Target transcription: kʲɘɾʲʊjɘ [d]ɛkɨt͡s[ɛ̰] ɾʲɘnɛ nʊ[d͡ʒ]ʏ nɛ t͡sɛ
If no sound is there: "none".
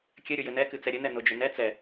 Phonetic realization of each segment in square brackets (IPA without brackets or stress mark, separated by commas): n, ɛ, d͡ʒ